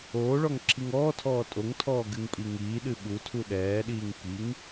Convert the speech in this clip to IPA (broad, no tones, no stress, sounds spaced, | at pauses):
oː ɭ ɔ ŋ ǁʰ i ŋ ɔː tʰ ɔː tʼ o ŋ tʰ ɔː ɡ ɨ ŋ pʼ i ŋ iː ɗ ɨ ɓ u tʰ u ɗ ɛː ɗ iː ŋ k i ŋ